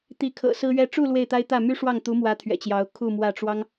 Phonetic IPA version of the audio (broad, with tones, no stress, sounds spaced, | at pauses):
t̪ i˧˥ kʰ ɤ̰˨˩ s ɹ̩˥ ɥ ɛ˥ ʈ͡ʂ u˥˧ l w e˥˩ ɪ̯ t̪ a˥ ɪ̯ t̪ ä˥˩ m y˥ ʂ w ɑ˥˩ ŋ t̪ u˧˥ m w ä˧˥ t̪ʰ ɥ ɛ̰˨˩ t͡ɕ j ɑ˧˥ ʊ̯ kʰ u˥˧ m w ä˥˩ ʈ͡ʂ w ɑ˥ ŋ